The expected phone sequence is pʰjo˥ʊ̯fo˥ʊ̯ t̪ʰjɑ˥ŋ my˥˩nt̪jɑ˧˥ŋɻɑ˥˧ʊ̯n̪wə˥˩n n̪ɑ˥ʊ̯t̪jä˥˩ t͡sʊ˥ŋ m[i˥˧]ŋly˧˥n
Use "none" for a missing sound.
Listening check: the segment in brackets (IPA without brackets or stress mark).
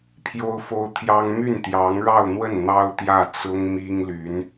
i˥